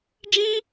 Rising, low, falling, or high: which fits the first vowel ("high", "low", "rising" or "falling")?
high